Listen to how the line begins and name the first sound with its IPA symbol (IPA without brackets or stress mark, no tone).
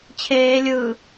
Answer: t͡ɕʰ